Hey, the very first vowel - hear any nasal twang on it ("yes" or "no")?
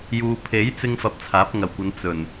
no